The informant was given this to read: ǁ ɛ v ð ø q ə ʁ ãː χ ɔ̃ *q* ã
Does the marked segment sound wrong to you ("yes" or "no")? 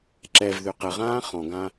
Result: yes